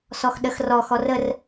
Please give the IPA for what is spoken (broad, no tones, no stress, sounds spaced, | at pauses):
s ɔ x ɗ ə x r ɔ x ɔ r ə r